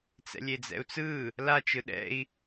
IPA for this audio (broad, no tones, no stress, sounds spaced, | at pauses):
t͡s ɛ̰ lʲ e d͡z ɛ̰ u̯ t͡s ɯ | l a t͡ʃ ɯ ɗ ɛ̰ i̯